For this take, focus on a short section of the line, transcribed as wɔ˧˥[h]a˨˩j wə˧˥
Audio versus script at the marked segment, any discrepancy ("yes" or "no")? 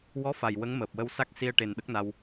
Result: yes